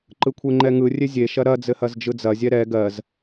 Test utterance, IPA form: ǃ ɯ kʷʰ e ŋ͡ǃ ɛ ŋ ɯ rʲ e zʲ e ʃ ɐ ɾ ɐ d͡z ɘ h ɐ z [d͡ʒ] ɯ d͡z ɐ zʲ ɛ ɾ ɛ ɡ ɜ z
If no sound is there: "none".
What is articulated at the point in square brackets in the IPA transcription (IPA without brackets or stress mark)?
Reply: d͡ʒ